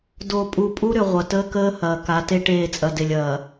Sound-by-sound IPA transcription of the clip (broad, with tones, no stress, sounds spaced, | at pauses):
d o˨ pʼ u˨ pʼ u˦ ɾ ʏ˨ ʁʷ ɐ˨ t əː˦ k əː˦ h ɐː˨ k a˨˦ t e˦ ʈ eː˦˨ t͡sʼ ɐ˨ d e˨ lʲ ɐː˨